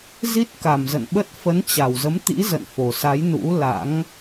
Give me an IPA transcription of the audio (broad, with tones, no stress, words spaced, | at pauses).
zi˦˥t̚ka˨˩mzə̰˧˨nɓə˦˥t̚ fə˨˦nt͡ɕa˨˩wzə˨˦mt̪ḭ˧˥ zə̰˧˨nfo˨˩sa˨˦j nṵ˧˥la̰˧˥ŋ